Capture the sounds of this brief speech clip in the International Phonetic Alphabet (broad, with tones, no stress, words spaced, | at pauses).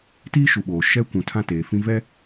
tiː˦ʃu˨ɓoː˨ ʃɛ˦ kʷũ˨ tʰã˦˨ teː˨fĩ˦ vɛ˦